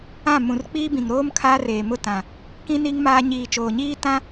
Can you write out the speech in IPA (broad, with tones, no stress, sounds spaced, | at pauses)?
ã˦˨ m ũ˨ r k͡p iː˦ b ĩ˨ ŋ ɾ oː˦ m kʰ aː˦ r eː˨ m ʊ˦˨ t ã˨ | k ĩ˦ n i˦ ŋ m aː˦ ɲ iː˨ t͡ʃ oː˨ ɲ iː˦ t ã˦